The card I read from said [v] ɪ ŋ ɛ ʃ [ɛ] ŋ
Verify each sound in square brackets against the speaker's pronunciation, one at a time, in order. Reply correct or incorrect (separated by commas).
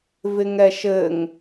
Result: correct, incorrect